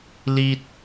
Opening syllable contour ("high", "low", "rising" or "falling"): low